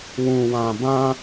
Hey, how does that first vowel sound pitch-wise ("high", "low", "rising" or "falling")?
low